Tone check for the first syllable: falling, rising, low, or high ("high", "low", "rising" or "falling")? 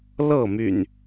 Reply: falling